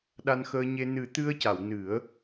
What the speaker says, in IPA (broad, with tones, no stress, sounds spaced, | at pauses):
ɗ a˧ n x əː˧ ɲ e˧ n ɨ˨˩˦ t̪ ɨ˧ ə̯ c a˨˩˨ w n ɨ˨˩˦ ə̯